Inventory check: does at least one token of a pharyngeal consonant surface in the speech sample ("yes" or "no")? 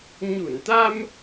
no